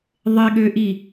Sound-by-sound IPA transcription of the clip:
ðˤ ɪ ɠ ø ʔ i

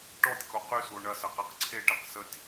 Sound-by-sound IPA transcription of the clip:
ʈ ɔ tʲ k o q y s u o̯ ɳ ɐ s ɐ q e q ǀʰ e ʈ e q s ə tʲ

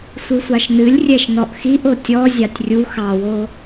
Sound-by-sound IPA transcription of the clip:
sʷ ɨ sʷ ɑ ʃ n ɨ lʲ rʲ ɛ ʃ n ɔ ʔ x i ʔ o tʲ ɔ zʲ ɑ tʲ rʲ u x ɑ w o

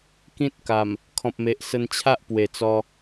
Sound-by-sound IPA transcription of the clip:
k ĩ˦ t̚ k a˨˩ m | kʰ ɔ̃˨ p̚ m e˨ ʔ s ə˧ n t͡ɕʰ a˦ ʔ p w e˨˩ t͡s ɔ˧

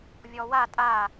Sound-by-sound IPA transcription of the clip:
vʲ ɔ w a tʼ a

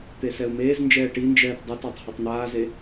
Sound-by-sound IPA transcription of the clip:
t̪ e s ɛ u̯ m eː z n d͡ʒ ɛː ʈ i n d͡ʒ ɛː t dˤ ɘ t a tˤ h e tˤ n̪ aː z e

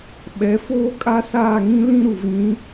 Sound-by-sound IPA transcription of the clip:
ɓ ɛ˨˦ f oː˦ kʼ a˦ s aː˦˨ ŋ ĩ˦ l ĩ˦ ɾ u˨ v ĩ˨˦

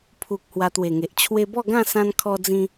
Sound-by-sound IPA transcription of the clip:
pʰ u˨ k̚ h w a˧ t̪ w e˨˩ ŋ e˨ ʔ t͡ɕʰ w e˧ b ɔ˥˧ ɡ ã˥˧ s ã˧ n kʰ ɔ˧ d͡z ĩ˧

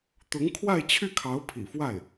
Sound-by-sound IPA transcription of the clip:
t̪ ʊ˧˥ ŋ kʰ w a˥˧ ɪ̯ t͡ɕʰ y˥˩ kʰ ɑ˧˥ ʊ̯ pʰ ḭ˨˩ f w a˥˩ ɪ̯

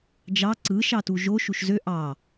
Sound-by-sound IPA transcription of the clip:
d͡ʒ ɑ ǀ ɯ ʃ ɑ t u ʒ o ʃ u ʃ z ø ʔ ɑ

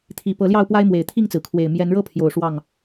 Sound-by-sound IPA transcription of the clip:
t̪ʰ i˨˩ p ɤ˨˦ l j ɑ˥˨ ʊ̯ p w a˦ ɪ̯ m w e˨˩ ɪ̯ t̪ʰ i˥˨ ŋ t͡s ɹ̩˩ kʰ w e˨˩ ɪ̯ m j ɛ˨˦ n ɻ ɤ˦ pʰ j o˨˩ ʊ̯ ʂ w ɑ˥˨ ŋ

